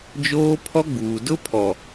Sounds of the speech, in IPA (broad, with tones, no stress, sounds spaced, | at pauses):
d͡ʒ oː˦ pʰ ɔ˦ ɡ͡b uː˨ d ʊ˦ pʰ ɔ˨